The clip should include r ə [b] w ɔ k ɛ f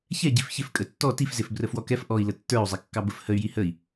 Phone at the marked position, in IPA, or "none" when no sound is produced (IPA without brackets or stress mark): f